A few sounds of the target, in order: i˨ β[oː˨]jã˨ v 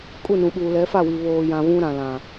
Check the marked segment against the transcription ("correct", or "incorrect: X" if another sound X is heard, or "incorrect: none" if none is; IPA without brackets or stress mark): correct